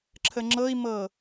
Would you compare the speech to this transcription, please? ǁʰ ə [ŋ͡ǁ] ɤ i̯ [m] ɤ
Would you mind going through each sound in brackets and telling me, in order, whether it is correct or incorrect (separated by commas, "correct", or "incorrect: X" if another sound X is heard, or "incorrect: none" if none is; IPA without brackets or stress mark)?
correct, correct